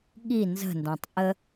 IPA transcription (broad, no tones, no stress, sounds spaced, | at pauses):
ɠ i n z ə̤ n d ã tˤ ʔ ə